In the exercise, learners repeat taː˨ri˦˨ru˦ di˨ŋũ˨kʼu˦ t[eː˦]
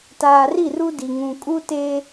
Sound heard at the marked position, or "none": eː˦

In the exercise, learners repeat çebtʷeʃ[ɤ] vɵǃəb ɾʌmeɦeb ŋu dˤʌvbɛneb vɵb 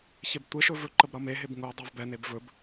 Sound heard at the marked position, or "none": ɵ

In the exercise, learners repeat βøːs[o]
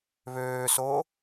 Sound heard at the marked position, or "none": oː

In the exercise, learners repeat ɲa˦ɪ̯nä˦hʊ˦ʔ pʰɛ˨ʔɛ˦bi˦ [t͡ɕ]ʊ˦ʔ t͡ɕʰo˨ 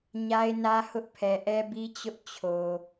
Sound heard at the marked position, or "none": t͡ɕ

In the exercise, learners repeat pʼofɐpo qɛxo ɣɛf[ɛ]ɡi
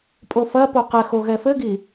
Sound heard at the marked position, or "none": ɘ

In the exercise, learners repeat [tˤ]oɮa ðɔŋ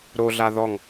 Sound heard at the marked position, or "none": ɾ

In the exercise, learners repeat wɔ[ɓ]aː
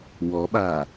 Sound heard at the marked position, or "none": ɓ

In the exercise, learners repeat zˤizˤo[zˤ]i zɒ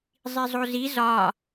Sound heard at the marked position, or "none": z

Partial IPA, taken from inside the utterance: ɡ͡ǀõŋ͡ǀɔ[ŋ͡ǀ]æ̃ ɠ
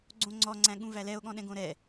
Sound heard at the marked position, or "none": ŋ͡ǀ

